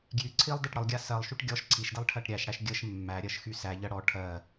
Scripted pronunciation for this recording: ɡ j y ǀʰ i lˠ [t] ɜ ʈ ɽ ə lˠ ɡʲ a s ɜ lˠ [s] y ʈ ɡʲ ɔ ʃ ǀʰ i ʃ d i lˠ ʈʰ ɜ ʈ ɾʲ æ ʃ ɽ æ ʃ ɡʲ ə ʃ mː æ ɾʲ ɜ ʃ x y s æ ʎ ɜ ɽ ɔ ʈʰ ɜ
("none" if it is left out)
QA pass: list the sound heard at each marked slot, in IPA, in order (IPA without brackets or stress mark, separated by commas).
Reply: d, ʃ